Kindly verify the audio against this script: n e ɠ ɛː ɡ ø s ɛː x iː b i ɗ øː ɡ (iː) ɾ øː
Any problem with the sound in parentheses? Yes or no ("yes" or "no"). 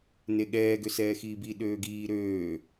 no